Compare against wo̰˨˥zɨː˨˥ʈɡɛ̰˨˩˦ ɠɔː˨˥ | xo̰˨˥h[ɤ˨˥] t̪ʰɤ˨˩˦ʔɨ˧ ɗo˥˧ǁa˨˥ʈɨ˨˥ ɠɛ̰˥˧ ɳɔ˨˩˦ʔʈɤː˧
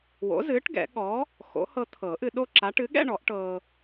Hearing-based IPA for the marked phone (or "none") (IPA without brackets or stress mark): ɤ˧